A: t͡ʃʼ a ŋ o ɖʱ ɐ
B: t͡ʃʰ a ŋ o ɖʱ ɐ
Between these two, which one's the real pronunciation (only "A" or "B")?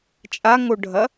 A